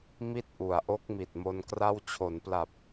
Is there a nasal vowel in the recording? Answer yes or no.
no